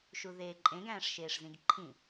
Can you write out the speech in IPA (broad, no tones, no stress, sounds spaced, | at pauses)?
ʃ u ð eː ǃʼ ẽ ɡ æ̃ː ʂ ʃ eː ʂ z ĩ ɡ ǃʰ ĩ